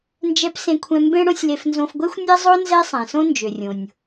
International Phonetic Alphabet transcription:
n d͡ʒ ɛ˧ p s ẽ˧ kʷʰ ɛ̃˧ m b ẽ˥ ɽ õ˥ sʲ l e˧ f n z õ˧ f ɡʷ e˥ xʷ nʲ e˥ zˤ o˥ n z ɛ˥ sˤ ɛ̃˩ s õ˥ n d͡ʒ ø˩ rʲ õ˩ nʲ

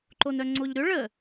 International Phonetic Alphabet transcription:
ǃ o n œ ŋ͡ǀ o ʎ ɾ ʏ ɭ ə

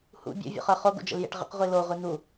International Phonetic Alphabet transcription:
h ṵ bʲ ɔ̰ vʲ ṵ χ ə˞ χ o ɡ ṵ d͡ʒ ə̰ l j ḛ ʈ ʁ ə̰ q ʁʷ i l o ʁʷ i n u

